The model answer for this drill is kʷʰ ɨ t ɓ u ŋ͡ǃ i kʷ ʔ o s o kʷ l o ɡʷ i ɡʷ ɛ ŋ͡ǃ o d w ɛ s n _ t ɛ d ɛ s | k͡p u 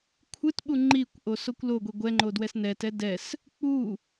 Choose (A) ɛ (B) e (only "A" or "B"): A